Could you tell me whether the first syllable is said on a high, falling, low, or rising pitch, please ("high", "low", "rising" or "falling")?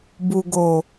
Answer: low